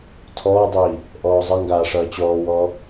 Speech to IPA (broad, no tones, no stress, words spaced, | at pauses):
tʰɔːdˤiː | ʔɔːzˤʌŋɡaː ʂʌːt͡ɕɔːwɔː